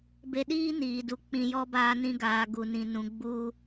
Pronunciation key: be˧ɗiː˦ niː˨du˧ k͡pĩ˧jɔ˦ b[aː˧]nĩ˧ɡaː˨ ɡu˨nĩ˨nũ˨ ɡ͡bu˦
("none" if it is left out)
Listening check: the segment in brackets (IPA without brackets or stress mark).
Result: aː˧